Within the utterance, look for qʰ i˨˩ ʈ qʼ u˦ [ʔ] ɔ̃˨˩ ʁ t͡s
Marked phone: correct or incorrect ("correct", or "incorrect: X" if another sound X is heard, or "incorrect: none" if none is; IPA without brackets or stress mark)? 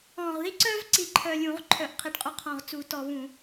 incorrect: qʰ